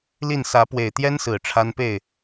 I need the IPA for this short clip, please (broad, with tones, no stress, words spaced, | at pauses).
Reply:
li˥˨n sä˨˦pwe˨˩ɪ̯t̪jɛ˦nsɹ̩˨˩ ʈ͡ʂʰa˦npe˥˨ɪ̯